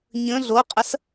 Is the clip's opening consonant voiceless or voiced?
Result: voiced